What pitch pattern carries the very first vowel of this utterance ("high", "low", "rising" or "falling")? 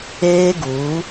high